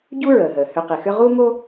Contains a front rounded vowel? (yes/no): yes